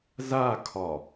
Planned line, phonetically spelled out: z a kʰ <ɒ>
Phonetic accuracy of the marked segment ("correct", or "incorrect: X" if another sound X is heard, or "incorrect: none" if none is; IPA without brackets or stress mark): correct